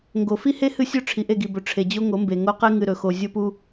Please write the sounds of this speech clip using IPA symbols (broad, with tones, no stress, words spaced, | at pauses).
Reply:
ŋɡo˨fi˦he˦ hɨ˦sʲɵ˦ ʈ͡ʂʰi˨ʔe˦˨ɡi˨bɵ˨ ʈ͡ʂʰe˨d͡ʑo˦ ŋo˨˦mbe˨ ŋo˦qe˦ ŋɨ˨ɾɵ˨xo˨ zʲo˦pu˦